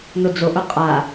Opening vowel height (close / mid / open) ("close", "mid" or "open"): mid